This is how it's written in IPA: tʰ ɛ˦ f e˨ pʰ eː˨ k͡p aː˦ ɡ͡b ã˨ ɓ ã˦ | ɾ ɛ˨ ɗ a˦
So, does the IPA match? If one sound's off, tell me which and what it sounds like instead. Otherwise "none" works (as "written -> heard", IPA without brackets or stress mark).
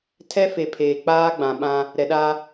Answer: none